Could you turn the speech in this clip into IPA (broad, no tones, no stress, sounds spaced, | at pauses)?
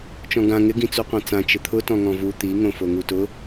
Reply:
t͡ʃ ɔ̃ ɡ ã ŋ ɪ ɡ ĩ t͡s u qʷ ã t͡s ã t͡ʃ ɪ t̪ʰ ʊ t ɔ̃ ŋ ɔ̃ v u t̪ i ŋ õ f o ŋ u t ʊ